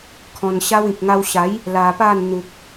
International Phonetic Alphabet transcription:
kʰ ɔ̃˧ n ɕ a˦ w ĩ˨ k̚ ŋ a˧ w ɕ a˨˦ j | l a˧ p a˥˧ n n̪ u˨ k̚

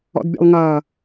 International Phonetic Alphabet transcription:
ɔ̰ d bʲ ə̰ lˠ ŋ ʌː

